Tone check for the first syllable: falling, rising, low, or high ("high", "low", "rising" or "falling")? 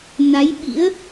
rising